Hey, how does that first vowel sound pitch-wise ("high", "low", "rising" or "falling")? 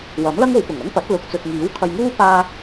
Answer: rising